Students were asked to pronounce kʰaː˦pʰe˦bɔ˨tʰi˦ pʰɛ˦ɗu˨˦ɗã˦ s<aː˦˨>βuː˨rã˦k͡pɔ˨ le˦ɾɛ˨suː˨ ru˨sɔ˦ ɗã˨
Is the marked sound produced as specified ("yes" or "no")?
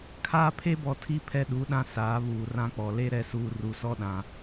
no